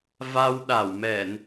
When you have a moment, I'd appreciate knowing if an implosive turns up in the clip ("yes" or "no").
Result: yes